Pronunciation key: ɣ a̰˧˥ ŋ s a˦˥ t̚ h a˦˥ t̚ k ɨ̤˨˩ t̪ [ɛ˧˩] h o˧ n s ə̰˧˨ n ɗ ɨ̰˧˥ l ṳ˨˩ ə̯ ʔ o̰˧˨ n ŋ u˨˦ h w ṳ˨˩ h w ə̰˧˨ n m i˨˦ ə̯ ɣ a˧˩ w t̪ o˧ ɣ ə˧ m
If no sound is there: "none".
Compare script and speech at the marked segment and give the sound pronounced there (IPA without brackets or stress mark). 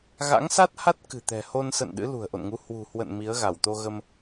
ɛ̤˨˩